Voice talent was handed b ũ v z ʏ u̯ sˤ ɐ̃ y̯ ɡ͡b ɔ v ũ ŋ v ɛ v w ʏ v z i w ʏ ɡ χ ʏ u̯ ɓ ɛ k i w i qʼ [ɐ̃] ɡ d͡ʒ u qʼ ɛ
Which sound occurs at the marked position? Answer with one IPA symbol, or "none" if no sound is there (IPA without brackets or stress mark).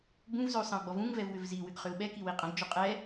ɐ̃